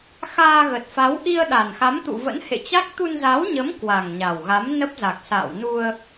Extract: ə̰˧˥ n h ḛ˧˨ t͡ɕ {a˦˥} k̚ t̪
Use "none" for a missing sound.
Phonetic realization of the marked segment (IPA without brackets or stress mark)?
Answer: a˦˥